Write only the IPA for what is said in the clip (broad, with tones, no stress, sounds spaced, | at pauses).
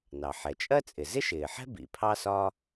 n ɑ˩ ħ ɛ˩ t͡ʃʼ ɜ˥ t͡sʼ ɪ˩ z ɪ˥ ʃ ɪː˩ ħ ɛ̤˥ b ḭ˩ pʰ ɑ˥ s ɒ˥